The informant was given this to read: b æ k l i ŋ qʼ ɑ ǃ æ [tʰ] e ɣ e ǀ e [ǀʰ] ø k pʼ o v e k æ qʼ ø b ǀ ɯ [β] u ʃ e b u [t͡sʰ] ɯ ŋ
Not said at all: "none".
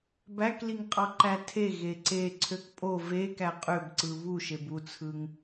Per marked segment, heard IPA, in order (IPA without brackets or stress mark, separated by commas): tʰ, ǀʰ, β, t͡sʰ